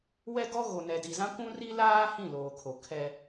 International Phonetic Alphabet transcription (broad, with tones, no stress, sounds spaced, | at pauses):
w ɛ˦ ɡ ɔ˦ ɣ o˨ n ɛ˨ d i˨ z ã˦ kʷ ũ˦ r i˦ l aː˦ h ĩ˦˨ l oː˨ kʰ o˨ kʰ ɛ˦